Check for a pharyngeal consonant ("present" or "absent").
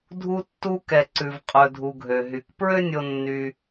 absent